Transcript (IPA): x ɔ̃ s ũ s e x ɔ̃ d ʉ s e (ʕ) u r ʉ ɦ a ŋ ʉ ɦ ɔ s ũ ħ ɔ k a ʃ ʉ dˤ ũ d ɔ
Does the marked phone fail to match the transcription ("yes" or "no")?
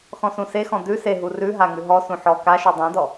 yes